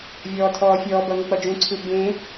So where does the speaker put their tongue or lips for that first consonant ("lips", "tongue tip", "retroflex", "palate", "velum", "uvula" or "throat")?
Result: lips